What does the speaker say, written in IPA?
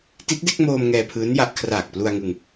ti˦˥t̚de˥˩k̚moː˧m ŋɛː˧pʰɯː˦˥n ja˦˥ʔ kʰraː˨˩k̚plu˧a̯ŋɯ˧ŋ

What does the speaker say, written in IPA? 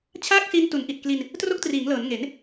t͡ɕʰaː˥˩k̚si˦˥n tu˩˦nʔi˨˩t̚kli˧n | tro˦˥k̚triː˩˦ŋlɤː˩˦n ŋe˩˦n

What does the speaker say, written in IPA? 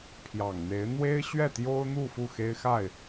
pʰjɑ˨˩ŋn̪e˧˥ɪ̯ n̪we˥ɪ̯ɕɥɛ˥˩t̪jo˥ʊ̯n̪u˥˧ fu˥˩xe˥ɪ̯xa˥˩ɪ̯

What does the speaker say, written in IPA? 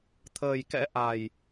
t̪ʰəː˨˩jkɛ̰˧˥ʔa˨˩j

